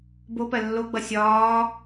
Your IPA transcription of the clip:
bopɜ lːoɡ͡bʌ sʲɒː

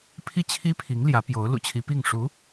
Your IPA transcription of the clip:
pʰi˥˩t͡ɕʰi˥pʰi˧˥ŋ ljä˧˥pjo˧˥ʊ̯ lṵ˨˩t͡ɕʰi˧˥pi˥˩ŋ ʂu˧˥

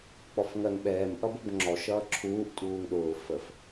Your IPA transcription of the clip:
k͡pɔfŋɜŋɓɛːm ʔʌbəbŋ͡ǁɔ ʃʌːǁʰuːʔ tʼuːŋɗʊː fəf

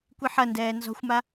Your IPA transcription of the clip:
kʷiħɐndɛː nzɔ̤xʷma

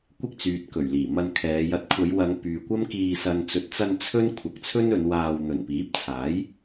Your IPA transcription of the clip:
kʷɪ˥k̚ t͡syː˨t̚kɵ˨˩ɥliː˨˩mɐ˧n kʰɛː˨˧jɐ˧t̚ kʷʰɐ˨˧jwɐ˨˧ŋ pyː˨kʷɐ˥mkiː˧ sɐ˨nt͡sɵ˨t̚t͡sɐ˧n t͡sʰɵ˥n kʷʰɐ˨k̚t͡sʰɵ˥n ɵ˨˧n waː˧w n̪ɵ˨˩npiː˨˥p̚t͡sʰaː˨˥j

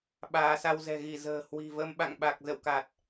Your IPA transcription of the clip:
ɓaː˨˦sa˧w zɛ̤˨˩ɣi˧˩zə̤ː˨˩ hwi̤˨˩və˧m ɓa̰˧˨ŋɓa˨˩k̚ zə̰˧˨wka˨˩t̚

